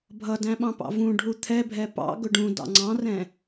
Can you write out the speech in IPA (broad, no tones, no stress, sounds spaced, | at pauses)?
bʱ ʌ d æ̃ ɓ ɑ̃ p ɑ̰ v ũ ɖʱ u t̪ʰ ɛ bʱ ɛ p ɑ̰ ɡ ʊ ɖ ũ d ɑ̰ ŋ͡ǀ ɑ̃ r ɛ̃